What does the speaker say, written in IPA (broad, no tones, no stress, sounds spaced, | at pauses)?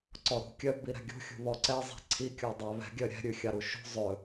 ǀ ɔ ɾ ṳ kʲ œ b i ɾ ɛ̤ ɡʲ ṳ xʲ ṳ β ɔ ǀ ɛ zˤ ɛ̤ ǀʰ i kʲ ɔ dˤ æ β ɛ̤ ɡʲ œ ɾʲ ɛ̤ ɾʲ ʉ xʲ ɑ ɾ u ʃ ṳ zˤ ɵ